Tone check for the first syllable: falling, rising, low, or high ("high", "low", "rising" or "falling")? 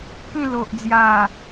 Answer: falling